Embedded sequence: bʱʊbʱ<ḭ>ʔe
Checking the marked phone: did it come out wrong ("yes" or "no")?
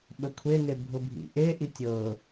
no